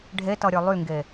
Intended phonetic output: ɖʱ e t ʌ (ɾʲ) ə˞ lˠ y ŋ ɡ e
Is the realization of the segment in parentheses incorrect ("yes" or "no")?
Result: no